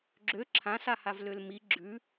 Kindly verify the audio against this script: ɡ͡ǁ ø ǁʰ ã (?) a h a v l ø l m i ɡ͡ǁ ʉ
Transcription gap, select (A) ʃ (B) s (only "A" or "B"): B